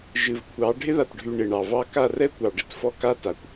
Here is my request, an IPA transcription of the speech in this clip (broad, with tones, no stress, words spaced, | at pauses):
ʒɨ˨vkʷʰɑ˨˦ ɖʱɪ˦ða˨tɖʱy˨ ɳɪ˨ɳɑ˨vɑ˦ ka˦˨rɛ˦kʷɑ˨ɖɪ˨t fɔ˦ka˦ta˨kʷ